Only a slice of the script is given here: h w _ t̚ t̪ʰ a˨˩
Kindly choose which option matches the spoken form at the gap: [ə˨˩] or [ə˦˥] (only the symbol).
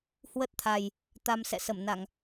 ə˦˥